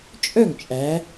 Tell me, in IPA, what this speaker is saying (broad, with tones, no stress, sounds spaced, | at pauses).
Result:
t͡ʃʼ œ˥˩ ŋ t͡ʃʼ æ˩˧